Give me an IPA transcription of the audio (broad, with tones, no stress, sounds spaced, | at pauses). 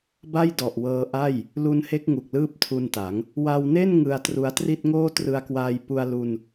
b a˥˩ j d ɔ˨˩ ʔ w ɤː˧ ʔ a˥˩ j | l u˦˥ n h e˦˥ k̚ ŋ u˨˩ k̚ l ɯː˥˩ p̚ tʰ u˧ n t a˩˦ ŋ | w a˧ w n e˥˩ n ŋ ɯ˧ a̯ t r u˧ a̯ t r i˥˩ t̚ ŋ oː˥˩ t r ɯ˧ a̯ k w aː˧ j p u˧ a̯ l u˧ n